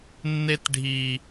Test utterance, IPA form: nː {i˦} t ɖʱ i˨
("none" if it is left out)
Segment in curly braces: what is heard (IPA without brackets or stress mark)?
e˦